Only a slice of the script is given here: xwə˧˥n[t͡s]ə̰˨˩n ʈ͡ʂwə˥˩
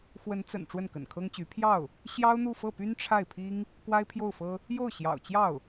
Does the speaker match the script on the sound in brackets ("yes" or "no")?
yes